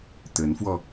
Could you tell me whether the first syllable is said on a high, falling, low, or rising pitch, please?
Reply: rising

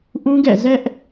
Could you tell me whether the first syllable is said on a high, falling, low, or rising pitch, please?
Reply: high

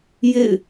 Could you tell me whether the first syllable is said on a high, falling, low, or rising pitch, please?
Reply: falling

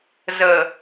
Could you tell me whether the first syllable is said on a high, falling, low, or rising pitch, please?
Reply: low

